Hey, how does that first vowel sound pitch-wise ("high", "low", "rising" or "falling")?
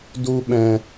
high